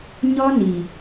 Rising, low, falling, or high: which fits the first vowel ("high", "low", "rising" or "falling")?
high